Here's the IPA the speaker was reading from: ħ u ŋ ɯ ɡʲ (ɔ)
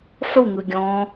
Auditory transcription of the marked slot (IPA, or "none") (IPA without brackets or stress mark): ɔ̃